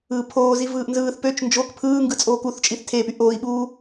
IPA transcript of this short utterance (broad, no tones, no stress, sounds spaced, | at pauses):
ɯː pʰ oː z i v ɯː ʔ n z ɯː θ p ø t͡ʃ n d͡ʒ o k pʰ ɯː ŋ ɡ ɯ t͡sʼ oː k u θ t͡ʃʼ i θ tʰ eː p y ʔ oː i̯ ɓ uː